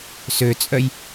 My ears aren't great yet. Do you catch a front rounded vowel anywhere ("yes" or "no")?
yes